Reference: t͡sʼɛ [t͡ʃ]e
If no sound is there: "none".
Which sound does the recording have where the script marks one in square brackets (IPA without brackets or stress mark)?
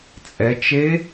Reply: t͡ʃ